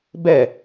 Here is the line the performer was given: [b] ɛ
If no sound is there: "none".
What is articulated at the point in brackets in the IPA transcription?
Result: b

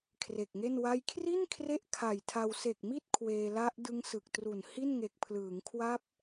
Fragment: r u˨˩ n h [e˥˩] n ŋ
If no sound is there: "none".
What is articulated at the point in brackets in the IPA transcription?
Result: i˥˩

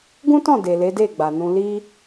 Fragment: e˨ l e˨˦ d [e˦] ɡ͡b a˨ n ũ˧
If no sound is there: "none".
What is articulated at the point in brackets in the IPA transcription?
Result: e˦˨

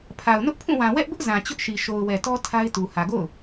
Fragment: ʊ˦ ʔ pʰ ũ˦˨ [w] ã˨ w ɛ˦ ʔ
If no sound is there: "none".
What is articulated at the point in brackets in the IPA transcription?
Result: w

